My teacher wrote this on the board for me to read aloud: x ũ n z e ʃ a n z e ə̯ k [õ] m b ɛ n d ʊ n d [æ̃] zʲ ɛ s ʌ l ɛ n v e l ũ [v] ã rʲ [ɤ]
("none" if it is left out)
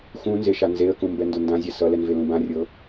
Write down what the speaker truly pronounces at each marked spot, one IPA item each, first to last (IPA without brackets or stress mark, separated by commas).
ũ, ã, b, ɤ